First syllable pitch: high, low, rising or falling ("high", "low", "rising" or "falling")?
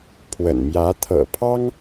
low